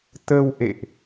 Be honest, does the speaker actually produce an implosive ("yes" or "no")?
no